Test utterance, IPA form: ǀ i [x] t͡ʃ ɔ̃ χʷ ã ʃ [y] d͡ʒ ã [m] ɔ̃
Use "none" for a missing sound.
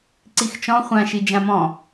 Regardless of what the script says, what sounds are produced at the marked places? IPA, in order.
x, i, m

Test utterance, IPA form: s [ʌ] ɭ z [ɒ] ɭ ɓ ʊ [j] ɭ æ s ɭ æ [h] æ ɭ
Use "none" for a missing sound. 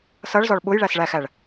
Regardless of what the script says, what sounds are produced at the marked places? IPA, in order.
ʌ, ɒ, j, x

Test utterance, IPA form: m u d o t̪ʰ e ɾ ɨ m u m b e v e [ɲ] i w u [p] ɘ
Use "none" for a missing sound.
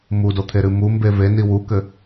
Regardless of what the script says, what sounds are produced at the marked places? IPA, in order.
n, k

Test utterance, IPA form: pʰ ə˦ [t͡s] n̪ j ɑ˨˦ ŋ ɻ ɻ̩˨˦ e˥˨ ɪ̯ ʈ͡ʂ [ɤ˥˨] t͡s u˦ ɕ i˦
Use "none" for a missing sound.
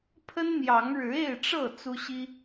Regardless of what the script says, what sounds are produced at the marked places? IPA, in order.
n, ɤ˥˨

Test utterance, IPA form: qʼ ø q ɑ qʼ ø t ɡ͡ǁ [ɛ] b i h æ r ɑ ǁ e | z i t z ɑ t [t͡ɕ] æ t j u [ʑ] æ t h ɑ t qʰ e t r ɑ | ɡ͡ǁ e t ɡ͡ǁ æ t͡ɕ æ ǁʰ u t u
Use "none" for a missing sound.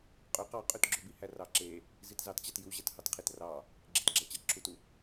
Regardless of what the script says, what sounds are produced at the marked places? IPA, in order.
ø, t͡ɕ, ʑ

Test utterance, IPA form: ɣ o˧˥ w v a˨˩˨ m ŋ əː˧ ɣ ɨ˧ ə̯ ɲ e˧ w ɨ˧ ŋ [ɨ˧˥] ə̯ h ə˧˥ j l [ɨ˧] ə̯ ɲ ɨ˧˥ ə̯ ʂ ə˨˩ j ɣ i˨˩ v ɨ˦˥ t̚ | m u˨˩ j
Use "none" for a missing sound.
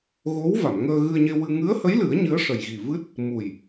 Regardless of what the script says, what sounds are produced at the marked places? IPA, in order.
ɨ˧˥, ɨ˨˩˦

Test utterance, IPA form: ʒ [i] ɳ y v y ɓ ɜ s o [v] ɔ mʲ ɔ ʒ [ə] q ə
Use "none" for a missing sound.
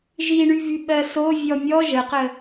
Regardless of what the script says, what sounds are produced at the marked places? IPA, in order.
i, vʲ, ə

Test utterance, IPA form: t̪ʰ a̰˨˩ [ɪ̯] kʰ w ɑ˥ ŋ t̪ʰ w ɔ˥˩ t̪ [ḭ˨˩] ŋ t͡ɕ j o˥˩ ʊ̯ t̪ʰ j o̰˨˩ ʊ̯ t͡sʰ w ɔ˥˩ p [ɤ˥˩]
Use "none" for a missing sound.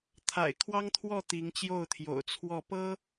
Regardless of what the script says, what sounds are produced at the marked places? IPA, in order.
ɪ̯, i˧˥, ɤ˥

